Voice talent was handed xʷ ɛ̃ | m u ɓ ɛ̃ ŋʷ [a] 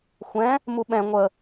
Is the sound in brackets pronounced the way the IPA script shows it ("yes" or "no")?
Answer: no